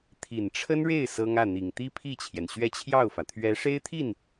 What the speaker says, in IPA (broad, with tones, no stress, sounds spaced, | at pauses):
t̪ʰ i˨˩ n ʈ͡ʂʰ ə˥ n ɻ e˥˩ ɪ̯ s ɤ˥ ŋ ä˥˩ n̪ i˨˩ ŋ t̪ i˥ pʰ i˥˩ t͡ɕʰ j ɛ˩ n ɕ ɥ ɛ˥˧ t͡ɕʰ j ɑ˥˩ ʊ̯ f ä˩ t̪ʰ ɥ ɛ˧˥ ʂ e˥ ɪ̯ t̪ʰ i˥˩ n